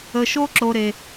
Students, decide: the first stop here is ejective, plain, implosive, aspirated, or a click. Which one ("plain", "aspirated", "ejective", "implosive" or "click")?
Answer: click